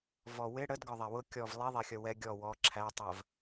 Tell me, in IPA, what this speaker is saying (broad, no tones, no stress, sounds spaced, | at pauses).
v ɔ w ɪ ɽ ə d ɡ ɒ ðˤ æ w ʊ kʲ ɔ v lˠ i ðˤ ɛ xʲ ʌ w ɛ ɡʲ ɔ w ɔ ǁʰ æ tˤ ɜ v